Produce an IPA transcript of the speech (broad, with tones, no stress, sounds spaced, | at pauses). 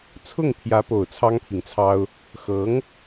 t͡sʰ ʊ˥˩ ŋ pʰ j ä˧˥ p o˨˩ ʊ̯ t͡sʰ ɑ˥ ŋ pʰ i˨ ŋ t͡sʰ ɑ˥ ʊ̯ | x ɤ˧˥ ŋ